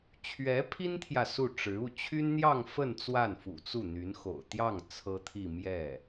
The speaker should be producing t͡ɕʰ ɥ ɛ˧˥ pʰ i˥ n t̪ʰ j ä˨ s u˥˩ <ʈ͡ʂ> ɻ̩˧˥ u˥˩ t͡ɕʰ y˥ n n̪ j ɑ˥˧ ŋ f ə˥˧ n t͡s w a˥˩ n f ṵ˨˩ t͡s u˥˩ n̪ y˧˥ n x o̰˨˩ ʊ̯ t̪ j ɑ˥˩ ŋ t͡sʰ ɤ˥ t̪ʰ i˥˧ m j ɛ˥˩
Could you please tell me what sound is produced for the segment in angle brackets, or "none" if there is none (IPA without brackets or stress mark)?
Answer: ʈ͡ʂ